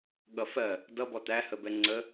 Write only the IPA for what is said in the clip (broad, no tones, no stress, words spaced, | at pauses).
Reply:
ɠʌfɜ | dʌ bɔt̪æ həbɛŋ͡ǀə